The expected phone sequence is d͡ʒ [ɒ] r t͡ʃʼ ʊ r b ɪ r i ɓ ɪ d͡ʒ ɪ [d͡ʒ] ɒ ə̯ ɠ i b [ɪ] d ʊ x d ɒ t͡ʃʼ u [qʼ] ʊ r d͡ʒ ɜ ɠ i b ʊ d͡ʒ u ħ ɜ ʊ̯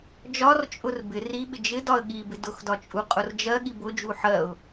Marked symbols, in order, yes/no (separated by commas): yes, no, yes, yes